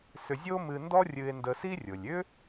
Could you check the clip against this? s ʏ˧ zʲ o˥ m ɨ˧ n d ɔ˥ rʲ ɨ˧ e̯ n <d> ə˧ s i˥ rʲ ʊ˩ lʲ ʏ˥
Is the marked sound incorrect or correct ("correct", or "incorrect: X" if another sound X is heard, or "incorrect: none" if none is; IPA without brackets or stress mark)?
correct